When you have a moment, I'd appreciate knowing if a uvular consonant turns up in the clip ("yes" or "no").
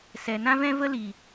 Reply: no